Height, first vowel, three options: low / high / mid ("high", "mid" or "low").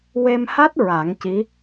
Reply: mid